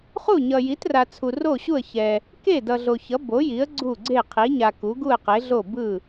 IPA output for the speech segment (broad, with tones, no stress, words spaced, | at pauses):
χu˥˩ɲʌ˨ ji˩˥tra˨t͡sʰu˨ ro˥˩ɕu˥˩ə̯ çɛ˨ | ke˥˩ dʌ˨ɮo˨çʌ˩˥ bo˩˥ji˩˥ə̯ ɡ͡ǀu˥˩ɡ͡ǀe˥˩ qʰi˩˥ɲa˨ ku˩˥ɡu˥˩ə̯qe˩˥ɮo˥˩ bɯ˥˩